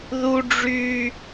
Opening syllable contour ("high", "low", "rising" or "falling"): high